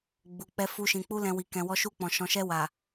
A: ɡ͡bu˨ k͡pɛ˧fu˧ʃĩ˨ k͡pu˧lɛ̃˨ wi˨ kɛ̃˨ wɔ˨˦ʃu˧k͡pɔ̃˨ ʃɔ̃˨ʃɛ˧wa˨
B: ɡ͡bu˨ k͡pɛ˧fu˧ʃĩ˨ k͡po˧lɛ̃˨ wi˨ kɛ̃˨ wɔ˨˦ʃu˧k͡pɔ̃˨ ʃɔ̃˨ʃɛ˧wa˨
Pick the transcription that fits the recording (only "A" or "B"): A